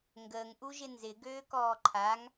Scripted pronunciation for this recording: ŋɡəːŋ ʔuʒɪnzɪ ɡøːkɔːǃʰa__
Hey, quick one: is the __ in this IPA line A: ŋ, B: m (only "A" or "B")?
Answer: A